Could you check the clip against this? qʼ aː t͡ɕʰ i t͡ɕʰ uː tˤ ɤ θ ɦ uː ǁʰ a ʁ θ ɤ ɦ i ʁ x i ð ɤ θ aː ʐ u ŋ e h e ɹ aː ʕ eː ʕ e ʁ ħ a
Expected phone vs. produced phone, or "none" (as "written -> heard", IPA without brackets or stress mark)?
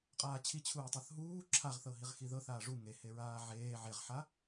none